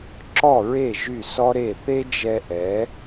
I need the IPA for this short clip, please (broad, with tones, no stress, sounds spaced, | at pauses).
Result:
ǁ ɔ˦˨ ɹ e˦˨ ʒ y˦˨ s ɔ˦ ɾ e˦˨ θ e˦ d͡ʒ ɛ˧ ʔ ɛ˨˦